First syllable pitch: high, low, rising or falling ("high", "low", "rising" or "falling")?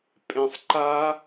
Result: low